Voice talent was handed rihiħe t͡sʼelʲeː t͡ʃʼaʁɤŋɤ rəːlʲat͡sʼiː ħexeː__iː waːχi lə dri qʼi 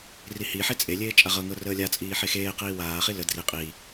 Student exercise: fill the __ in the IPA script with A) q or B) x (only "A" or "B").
A